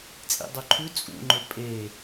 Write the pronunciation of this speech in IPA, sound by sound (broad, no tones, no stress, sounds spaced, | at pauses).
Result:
t͡sʼ ḭ dˤ o ǃʰ ʉ t͡sʼ ṵ ŋ͡ǃ ɵ pʼ e